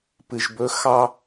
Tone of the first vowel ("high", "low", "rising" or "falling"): low